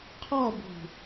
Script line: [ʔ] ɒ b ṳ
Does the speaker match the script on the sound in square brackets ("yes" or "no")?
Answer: no